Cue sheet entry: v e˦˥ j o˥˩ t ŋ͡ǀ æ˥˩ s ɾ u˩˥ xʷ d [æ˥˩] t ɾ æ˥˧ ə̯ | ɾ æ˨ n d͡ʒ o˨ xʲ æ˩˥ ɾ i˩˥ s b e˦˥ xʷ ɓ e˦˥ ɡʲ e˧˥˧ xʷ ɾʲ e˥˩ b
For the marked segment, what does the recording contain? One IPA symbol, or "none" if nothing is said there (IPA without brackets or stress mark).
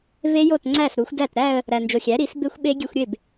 æ˥˩